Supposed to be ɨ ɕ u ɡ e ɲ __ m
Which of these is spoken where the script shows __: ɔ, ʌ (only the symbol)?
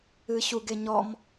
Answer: ɔ